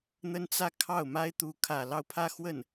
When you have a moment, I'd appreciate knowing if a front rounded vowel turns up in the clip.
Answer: no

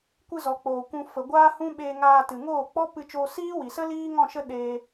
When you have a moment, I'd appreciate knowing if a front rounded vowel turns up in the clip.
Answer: no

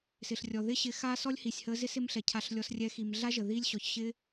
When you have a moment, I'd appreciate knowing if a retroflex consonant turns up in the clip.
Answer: no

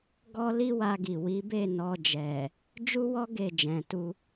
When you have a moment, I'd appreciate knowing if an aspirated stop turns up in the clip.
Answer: no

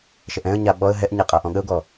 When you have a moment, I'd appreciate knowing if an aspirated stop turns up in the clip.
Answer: no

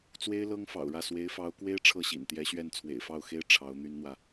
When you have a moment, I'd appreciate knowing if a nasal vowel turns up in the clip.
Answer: no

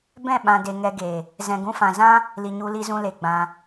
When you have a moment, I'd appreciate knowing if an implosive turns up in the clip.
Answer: yes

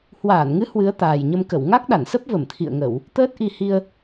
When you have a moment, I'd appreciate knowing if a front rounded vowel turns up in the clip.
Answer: no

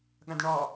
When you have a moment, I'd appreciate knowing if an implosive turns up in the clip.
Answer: yes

